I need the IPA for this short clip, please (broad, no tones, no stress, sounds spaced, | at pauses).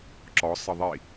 ǁ ɔ sˤ ə ðˤ i